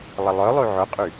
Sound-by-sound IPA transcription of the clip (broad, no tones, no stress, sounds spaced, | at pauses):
lˠ ə lˠ œ lˠ y ʕ ʊ qʼ y